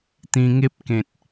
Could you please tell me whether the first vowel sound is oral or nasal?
nasal